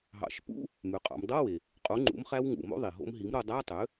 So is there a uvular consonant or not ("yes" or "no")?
yes